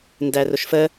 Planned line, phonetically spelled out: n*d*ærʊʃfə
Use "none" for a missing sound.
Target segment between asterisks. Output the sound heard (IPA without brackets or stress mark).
d